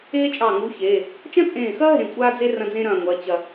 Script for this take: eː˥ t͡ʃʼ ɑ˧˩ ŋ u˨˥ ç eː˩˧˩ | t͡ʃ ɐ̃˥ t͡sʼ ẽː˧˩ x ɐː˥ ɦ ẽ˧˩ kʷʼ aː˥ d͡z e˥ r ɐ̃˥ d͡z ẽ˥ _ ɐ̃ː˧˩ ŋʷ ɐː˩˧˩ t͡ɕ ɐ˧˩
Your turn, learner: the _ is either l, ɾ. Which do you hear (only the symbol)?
ɾ